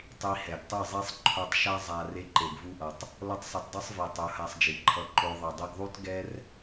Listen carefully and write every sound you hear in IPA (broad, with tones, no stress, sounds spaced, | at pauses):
tˤ i˧ h ɛ˨ ɡ tˤ ɯ˦˨ zˤ i˦ sˤ ǃʰ o˧ tˤ ʃ a˦ zˤ a˧ r e˧ ǃ e˨ ɡ v u˧ ʔ ʌ˨ tˤ | l ʌ˦ tˤ sˤ ʌ˧ t dˤ ɯ˦ sˤ v i˨ tˤ u˨˦ h a˧ sˤ d͡ʒ i˨ ǃʰ ʌ˧ ǃ o˧ ðˤ ɯ˨ dˤ e˧ ɡ ðˤ u˦ t ɡ ɛ˦ r